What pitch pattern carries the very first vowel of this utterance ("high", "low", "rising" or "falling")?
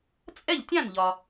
falling